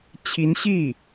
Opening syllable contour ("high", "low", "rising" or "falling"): rising